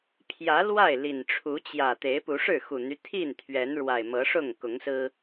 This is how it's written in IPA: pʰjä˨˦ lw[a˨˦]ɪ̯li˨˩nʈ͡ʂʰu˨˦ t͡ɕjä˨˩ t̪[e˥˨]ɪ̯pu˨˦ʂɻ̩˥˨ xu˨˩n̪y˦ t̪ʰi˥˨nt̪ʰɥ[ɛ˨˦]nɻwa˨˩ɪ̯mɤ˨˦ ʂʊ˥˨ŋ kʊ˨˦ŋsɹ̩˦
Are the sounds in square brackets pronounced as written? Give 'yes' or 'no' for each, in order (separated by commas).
no, no, yes